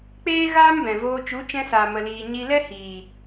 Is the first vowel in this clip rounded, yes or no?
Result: no